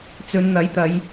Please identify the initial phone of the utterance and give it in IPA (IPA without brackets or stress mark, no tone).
t͡s